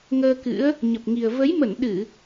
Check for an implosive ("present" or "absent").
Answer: present